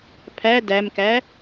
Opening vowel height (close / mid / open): open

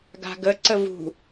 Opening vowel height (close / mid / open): open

